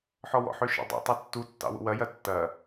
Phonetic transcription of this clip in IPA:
ħ ɔ w ɔ̰ ħ ø ʃ ə̰ dˤ ṵ tˤ o tː u tː ɑ̰ w ṵ w ɐ j ɐ tː ɐ

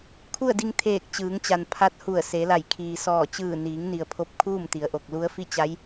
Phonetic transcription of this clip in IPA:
kʰ u˥˨ ə̯ d i˧ ŋ t̪ʰ eː˧˩ k̚ t͡ɕ ɯː˩˧ ŋ t͡ɕ a˩ n pʰ a˧˥ t̚ h u˧˩ ə̯ s e˩˧ l a˧˩ j kʰ iː˩ s ɔː˧˩ t͡ɕ ɯː˧˩ n iː˩˧ ŋ n i˩ ə̯ pʰ o˧˩ p̚ kʰ uː˥˨ m t̪ i˩ ə̯ ʔ o˧˩ k̚ l u˧˥ ə̯ f i˥˨ t͡ɕ a˧˥ j

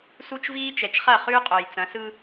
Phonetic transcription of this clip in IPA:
s u˦ t͡ʃ v iː˦ t͡ʃ ɛ˨ t͡ʃ χ ɐ˦˨ χ ʉː˦ qʼ o˨ j t͡s ɐ̃˨˦ s ɯ˦

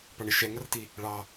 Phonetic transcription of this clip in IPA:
p ɑ ɳ ɪ ʃ ɛ ŋ ʌ r t i | ɭ ɑ

